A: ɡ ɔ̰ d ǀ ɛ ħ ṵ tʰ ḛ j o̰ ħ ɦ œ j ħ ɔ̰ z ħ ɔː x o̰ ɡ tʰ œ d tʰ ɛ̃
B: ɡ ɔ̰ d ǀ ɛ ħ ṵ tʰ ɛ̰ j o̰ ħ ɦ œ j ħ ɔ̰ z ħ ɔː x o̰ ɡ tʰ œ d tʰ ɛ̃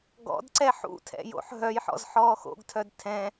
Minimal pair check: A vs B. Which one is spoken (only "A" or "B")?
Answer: B